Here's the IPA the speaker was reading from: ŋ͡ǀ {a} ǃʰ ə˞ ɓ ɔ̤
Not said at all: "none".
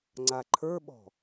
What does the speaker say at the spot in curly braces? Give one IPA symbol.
a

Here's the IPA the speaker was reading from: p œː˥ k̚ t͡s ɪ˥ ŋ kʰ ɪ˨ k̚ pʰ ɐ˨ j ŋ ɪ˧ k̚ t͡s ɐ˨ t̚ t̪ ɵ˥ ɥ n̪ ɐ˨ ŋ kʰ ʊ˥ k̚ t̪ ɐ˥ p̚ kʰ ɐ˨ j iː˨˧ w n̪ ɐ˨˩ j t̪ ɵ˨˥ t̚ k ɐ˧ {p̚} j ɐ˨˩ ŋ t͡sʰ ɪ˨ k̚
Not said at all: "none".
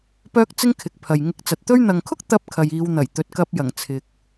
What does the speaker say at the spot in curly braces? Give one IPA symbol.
p̚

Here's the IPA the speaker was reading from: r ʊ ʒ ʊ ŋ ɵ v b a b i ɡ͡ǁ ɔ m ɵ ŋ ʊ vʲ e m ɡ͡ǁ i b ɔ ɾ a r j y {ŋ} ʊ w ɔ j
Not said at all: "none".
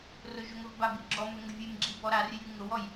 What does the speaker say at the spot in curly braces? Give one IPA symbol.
ŋ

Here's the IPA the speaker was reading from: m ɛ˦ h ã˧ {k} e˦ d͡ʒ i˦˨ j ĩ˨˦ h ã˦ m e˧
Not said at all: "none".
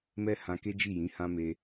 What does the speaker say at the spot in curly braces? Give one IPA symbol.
k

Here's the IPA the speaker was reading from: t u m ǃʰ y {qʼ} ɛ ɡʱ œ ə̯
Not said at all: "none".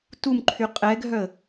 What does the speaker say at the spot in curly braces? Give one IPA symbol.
qʼ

